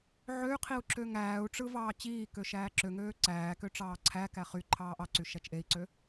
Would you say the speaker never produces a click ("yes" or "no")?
no